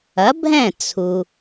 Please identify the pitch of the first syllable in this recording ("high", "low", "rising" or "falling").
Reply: rising